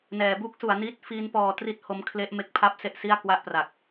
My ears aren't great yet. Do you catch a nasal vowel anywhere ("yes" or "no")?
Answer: no